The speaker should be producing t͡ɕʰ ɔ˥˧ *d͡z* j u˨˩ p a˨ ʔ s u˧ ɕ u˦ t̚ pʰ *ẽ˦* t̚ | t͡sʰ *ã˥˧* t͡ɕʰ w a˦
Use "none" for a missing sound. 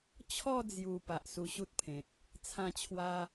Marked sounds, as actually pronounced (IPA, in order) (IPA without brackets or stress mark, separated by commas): d͡z, ẽ˨, ã˥˧